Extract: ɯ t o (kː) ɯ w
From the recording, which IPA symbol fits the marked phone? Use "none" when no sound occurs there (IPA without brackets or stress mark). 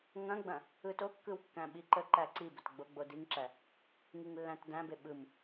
kː